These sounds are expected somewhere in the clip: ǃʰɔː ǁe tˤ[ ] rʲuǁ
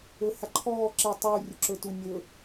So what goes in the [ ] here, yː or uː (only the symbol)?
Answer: uː